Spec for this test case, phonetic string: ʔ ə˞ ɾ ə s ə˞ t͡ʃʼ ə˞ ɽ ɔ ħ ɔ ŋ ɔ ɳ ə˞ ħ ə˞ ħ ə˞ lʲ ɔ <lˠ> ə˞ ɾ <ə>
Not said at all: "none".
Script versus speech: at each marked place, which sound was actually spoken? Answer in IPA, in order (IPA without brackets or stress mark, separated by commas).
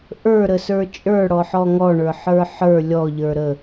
ʎ, ə